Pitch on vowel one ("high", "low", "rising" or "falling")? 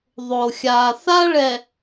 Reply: low